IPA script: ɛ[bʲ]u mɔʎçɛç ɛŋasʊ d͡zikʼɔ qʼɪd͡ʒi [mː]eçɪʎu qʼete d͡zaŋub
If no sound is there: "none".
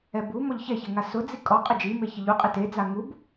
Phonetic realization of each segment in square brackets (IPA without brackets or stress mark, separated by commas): b, m